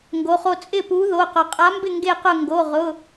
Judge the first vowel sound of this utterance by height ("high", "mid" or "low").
mid